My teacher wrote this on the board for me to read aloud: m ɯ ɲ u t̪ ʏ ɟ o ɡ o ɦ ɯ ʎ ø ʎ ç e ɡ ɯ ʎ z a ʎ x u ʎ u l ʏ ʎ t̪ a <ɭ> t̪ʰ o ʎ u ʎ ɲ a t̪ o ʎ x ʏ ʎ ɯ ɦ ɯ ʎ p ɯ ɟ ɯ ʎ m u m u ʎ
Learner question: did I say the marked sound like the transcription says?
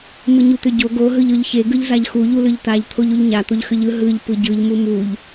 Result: no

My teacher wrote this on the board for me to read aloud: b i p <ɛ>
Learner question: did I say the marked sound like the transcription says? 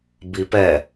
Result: yes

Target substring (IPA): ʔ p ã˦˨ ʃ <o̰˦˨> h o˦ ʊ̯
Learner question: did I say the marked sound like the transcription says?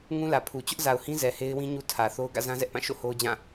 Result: yes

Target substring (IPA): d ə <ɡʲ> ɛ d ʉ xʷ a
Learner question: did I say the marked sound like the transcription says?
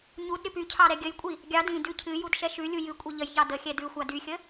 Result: no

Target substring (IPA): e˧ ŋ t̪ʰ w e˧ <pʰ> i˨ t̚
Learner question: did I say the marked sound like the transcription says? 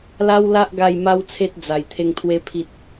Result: yes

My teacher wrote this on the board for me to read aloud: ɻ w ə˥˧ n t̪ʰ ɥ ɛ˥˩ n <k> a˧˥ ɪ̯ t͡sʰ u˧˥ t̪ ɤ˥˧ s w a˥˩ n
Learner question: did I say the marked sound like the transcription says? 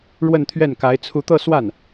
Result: yes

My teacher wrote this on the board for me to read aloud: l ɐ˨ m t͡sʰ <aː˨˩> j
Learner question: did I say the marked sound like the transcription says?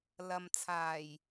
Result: yes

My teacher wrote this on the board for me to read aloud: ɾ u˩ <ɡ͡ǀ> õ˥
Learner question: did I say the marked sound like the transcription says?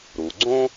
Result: yes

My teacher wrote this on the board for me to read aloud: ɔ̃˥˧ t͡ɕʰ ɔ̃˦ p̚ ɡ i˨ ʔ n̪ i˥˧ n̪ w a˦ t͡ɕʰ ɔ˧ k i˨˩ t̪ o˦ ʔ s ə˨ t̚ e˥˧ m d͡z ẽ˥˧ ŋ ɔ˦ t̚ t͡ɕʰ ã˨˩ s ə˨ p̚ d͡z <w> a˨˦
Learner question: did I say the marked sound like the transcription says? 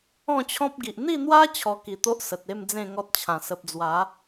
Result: yes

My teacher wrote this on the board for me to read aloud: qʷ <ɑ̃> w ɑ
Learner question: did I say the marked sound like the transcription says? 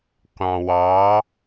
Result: yes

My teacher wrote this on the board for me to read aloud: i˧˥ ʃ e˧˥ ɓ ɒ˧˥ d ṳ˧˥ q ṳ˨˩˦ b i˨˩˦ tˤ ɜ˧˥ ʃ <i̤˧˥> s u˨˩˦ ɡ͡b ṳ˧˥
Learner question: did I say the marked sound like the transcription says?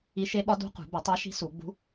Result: yes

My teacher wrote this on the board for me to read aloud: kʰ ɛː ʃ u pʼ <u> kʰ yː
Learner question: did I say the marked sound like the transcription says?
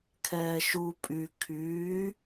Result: no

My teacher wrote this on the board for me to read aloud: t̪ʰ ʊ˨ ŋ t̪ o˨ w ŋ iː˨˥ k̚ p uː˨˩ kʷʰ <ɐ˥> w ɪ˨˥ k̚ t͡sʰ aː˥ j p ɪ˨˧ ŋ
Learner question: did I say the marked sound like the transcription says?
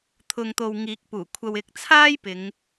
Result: no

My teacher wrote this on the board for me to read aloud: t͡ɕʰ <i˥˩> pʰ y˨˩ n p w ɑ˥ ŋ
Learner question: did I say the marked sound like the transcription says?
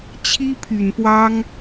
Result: no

